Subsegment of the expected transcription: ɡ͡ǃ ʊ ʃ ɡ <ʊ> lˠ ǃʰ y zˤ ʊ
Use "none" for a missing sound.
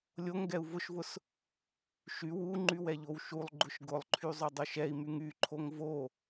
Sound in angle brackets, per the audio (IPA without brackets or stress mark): ʊ